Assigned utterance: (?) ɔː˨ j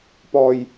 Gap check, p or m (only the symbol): p